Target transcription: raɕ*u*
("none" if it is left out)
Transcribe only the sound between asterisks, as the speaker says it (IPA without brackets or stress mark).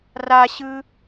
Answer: ɯ